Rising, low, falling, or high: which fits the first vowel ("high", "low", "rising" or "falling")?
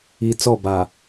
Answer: low